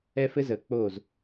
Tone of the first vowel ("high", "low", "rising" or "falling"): high